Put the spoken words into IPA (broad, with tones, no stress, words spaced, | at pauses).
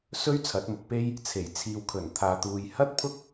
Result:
sɵ˥ɥ t͡sʰɐ˨˥t̚mʊ˨˥k̚pe˥j | t͡sʰe˨˩jt͡sʰiː˨wkʰɵ˨˩n t̪ʰaː˨t̪uː˨jhɐ˥t̚pʰʊ˥k̚